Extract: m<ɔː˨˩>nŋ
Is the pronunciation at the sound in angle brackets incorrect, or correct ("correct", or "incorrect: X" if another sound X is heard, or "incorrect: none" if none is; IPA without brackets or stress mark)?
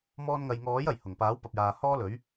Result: incorrect: ɔː˧